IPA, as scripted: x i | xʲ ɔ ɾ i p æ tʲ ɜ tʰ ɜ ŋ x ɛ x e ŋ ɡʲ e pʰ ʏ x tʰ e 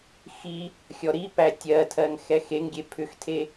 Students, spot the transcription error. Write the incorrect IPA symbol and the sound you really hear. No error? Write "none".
none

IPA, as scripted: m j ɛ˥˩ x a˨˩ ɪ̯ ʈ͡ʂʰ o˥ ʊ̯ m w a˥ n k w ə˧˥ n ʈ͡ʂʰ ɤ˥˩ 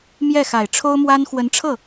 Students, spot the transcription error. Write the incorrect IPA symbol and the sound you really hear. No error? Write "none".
k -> x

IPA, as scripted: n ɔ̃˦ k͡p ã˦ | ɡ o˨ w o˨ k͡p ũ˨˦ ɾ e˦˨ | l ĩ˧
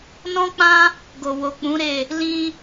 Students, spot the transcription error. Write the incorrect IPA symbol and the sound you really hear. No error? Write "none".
none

